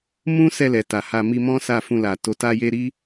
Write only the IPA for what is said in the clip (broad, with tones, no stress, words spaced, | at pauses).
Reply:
mũ˦sɛ˧ lɛ˨ta˨ha˧ mi˧mɔ̃˦ sa˦˨fũ˧la˨ to˨˦ta˦je˦ ɾi˦